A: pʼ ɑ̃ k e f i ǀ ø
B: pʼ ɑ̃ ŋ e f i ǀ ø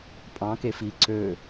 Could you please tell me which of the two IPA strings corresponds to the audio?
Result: A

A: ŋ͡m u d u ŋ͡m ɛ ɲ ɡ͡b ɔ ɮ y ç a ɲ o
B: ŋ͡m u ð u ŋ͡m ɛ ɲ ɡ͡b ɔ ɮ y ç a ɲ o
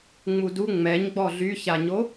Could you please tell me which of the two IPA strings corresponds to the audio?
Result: A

